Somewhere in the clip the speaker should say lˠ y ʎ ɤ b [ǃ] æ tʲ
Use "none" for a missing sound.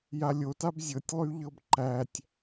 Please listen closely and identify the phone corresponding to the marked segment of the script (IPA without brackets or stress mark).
ǃ